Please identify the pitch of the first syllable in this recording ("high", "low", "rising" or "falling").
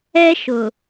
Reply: high